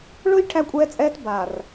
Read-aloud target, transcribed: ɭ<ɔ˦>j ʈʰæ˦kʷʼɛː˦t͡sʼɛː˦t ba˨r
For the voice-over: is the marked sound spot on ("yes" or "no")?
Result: no